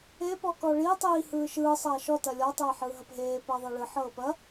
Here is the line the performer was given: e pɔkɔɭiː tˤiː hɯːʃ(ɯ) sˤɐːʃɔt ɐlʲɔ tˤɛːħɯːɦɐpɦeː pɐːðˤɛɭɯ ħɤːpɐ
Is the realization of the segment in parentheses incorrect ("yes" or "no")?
yes